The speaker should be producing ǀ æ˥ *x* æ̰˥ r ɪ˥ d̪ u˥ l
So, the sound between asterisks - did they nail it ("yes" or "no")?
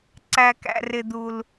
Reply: no